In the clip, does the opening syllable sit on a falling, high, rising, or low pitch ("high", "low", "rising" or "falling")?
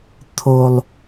low